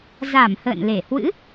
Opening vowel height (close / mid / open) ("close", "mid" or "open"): open